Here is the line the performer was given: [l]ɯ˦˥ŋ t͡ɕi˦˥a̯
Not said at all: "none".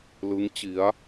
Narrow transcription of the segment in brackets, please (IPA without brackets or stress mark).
l